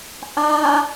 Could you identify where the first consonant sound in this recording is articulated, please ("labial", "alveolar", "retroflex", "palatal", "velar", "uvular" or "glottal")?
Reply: glottal